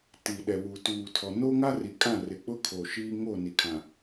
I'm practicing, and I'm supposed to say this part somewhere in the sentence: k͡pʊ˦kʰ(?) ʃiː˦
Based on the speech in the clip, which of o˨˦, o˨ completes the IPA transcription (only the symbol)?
o˨